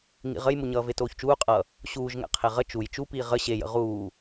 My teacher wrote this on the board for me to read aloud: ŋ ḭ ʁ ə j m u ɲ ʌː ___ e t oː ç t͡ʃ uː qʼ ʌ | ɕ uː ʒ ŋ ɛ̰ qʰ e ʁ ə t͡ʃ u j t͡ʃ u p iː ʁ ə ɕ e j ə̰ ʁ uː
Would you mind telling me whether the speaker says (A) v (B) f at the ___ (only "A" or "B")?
A